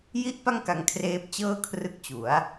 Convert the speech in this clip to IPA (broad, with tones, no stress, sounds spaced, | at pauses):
j i˥˩ ʔ p a˥˩ ŋ k a˧ ŋ kʰ r eː˦˥ p̚ t͡ɕ ɤː˥˩ kʰ r ɯ˦˥ k̚ t͡ɕ u˩˦ a̯